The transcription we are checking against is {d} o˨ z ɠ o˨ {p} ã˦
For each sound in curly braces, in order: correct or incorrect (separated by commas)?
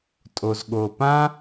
incorrect, correct